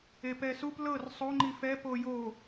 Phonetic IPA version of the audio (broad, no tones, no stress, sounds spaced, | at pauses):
e p ɛ s u p l ɤ r sˤ o ŋ͡ǃ i f ɛ p o j o